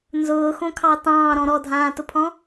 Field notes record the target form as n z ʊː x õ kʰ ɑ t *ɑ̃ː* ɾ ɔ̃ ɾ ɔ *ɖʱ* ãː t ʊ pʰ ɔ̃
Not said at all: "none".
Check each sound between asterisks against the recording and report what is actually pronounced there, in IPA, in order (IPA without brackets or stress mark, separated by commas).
ɑ̃ː, dʱ